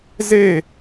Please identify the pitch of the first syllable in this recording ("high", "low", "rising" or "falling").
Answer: falling